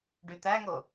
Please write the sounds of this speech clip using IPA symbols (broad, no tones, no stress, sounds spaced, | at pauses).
ɖ y t̪ æ ŋ o